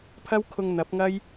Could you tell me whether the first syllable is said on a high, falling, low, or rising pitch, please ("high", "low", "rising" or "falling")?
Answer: high